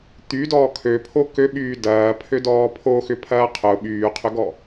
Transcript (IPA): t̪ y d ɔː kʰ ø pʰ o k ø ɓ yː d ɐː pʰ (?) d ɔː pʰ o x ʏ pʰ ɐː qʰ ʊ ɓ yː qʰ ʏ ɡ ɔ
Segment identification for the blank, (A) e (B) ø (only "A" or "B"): B